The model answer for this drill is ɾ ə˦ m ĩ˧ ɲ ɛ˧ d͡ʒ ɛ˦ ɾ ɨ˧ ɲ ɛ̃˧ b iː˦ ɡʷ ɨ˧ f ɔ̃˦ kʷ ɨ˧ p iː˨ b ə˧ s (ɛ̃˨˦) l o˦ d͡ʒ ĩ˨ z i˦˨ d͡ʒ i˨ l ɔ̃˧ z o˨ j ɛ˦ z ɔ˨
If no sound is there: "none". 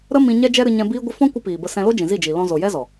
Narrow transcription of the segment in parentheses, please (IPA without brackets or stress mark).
ɛ̃˧